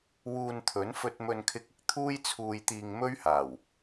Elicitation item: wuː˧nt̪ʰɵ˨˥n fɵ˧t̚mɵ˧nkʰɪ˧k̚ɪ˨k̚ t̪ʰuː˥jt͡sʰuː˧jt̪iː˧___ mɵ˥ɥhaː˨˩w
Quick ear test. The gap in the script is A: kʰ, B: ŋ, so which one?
B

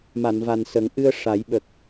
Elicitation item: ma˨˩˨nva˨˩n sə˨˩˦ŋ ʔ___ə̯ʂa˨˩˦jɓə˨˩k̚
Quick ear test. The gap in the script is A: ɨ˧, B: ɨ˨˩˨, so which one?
A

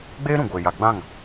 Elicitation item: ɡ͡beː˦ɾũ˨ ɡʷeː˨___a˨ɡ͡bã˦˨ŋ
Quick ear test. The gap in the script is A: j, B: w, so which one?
A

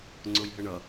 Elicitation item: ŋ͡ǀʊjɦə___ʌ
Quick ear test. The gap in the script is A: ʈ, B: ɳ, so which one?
B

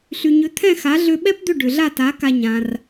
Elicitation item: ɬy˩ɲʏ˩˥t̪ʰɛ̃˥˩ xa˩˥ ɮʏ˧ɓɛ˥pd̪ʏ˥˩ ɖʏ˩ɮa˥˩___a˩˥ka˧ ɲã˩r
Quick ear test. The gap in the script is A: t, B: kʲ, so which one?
A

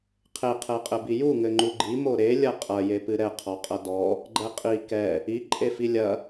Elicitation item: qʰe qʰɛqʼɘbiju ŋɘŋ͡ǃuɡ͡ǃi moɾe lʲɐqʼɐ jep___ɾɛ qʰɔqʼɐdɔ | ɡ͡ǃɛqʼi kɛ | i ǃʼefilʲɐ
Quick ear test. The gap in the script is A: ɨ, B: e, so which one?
A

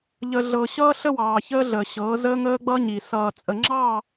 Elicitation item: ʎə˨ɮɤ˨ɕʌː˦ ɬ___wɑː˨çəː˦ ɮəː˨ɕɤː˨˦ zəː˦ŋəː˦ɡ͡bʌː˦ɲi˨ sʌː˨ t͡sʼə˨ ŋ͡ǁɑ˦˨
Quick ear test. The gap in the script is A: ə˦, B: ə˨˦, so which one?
A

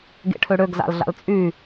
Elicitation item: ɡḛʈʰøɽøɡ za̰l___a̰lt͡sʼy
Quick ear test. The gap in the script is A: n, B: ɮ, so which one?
B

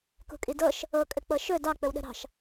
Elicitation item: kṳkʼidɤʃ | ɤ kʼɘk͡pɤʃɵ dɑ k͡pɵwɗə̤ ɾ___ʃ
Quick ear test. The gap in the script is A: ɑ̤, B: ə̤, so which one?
A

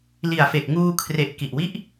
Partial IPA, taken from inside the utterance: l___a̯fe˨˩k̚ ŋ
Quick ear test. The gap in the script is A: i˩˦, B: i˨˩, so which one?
B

